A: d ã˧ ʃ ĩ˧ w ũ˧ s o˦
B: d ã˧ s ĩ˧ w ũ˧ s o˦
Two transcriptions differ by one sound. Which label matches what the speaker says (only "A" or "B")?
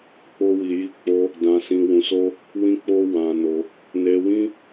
B